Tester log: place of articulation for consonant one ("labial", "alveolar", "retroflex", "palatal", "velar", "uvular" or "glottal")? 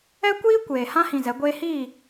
velar